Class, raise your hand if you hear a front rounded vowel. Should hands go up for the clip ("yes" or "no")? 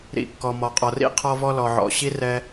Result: no